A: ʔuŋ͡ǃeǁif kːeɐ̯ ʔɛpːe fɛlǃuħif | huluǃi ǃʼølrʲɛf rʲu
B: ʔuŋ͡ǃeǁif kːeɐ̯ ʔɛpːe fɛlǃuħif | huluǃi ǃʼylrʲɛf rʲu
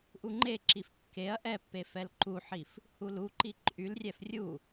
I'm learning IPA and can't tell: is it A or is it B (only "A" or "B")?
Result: B